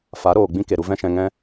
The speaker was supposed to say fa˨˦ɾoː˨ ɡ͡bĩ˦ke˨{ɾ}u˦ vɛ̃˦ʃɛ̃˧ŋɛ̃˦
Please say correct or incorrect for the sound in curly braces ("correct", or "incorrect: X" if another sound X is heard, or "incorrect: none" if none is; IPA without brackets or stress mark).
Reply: correct